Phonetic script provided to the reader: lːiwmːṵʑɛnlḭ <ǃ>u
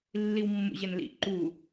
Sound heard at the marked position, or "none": ǃ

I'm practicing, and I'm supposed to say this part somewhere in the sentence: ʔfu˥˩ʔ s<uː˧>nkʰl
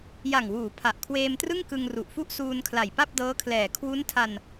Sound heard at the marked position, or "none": uː˧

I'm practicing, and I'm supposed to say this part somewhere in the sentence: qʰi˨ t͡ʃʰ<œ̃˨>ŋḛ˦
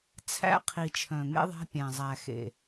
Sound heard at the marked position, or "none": œ̃˨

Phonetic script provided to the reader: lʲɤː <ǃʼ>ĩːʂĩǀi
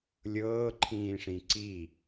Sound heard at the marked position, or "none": ǃʰ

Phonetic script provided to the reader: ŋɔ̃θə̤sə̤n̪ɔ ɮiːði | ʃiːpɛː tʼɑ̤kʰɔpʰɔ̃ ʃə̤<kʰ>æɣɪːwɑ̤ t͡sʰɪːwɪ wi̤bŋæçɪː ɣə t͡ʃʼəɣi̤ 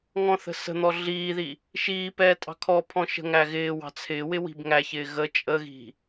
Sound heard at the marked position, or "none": ŋ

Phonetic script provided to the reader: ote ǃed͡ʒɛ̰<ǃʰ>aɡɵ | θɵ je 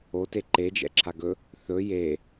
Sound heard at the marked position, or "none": ǁʰ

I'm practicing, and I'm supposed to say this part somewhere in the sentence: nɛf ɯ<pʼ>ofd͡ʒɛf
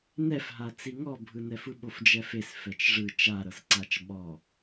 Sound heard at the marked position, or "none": ɓ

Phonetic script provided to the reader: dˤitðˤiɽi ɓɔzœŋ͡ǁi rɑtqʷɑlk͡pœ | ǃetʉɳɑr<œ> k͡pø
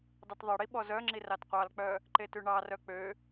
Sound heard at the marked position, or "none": œ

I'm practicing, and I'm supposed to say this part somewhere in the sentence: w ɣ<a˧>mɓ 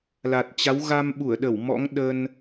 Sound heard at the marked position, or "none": a˧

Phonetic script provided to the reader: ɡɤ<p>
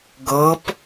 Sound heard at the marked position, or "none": p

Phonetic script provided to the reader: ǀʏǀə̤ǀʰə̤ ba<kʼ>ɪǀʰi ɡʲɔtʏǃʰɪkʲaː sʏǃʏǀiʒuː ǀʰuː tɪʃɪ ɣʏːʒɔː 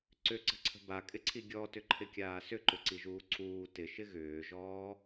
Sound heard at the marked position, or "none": kʼ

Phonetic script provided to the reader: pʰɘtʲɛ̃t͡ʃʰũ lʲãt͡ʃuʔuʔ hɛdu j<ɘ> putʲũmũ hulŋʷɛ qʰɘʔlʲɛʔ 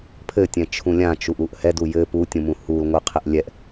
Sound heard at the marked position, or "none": ɘ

